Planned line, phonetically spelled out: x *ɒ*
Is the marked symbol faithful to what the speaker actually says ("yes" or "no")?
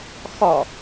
yes